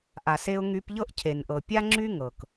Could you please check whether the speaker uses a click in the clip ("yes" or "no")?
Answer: yes